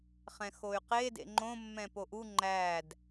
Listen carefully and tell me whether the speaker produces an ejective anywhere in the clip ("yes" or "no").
no